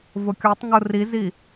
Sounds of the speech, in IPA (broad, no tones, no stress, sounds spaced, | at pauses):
v ʊ kʲ ɔ tˤ ŋ ʊ r i z i